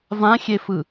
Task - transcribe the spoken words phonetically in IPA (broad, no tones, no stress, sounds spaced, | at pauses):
v ã xʲ e f ɯ